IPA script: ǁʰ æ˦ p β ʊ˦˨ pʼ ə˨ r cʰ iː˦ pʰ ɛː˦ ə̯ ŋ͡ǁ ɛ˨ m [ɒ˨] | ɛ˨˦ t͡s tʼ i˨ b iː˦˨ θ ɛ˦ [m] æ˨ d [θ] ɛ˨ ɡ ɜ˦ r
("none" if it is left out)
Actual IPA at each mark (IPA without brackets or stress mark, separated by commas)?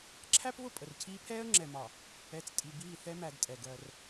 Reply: ɒ˨, m, tʼ